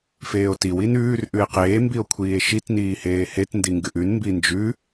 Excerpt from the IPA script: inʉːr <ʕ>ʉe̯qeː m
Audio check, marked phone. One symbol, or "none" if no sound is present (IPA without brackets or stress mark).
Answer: ʔ